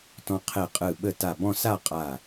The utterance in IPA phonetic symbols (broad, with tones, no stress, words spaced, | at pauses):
tɔ̃˧qʰe˧˩qʼɯ˧˩ɓə˥˩ ta˧˩bɔ̃˥˧sa˥˧ qʼa˥˩